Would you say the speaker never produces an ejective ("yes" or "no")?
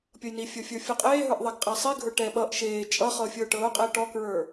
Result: no